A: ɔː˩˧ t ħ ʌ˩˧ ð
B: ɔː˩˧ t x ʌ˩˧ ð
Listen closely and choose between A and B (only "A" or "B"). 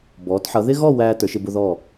A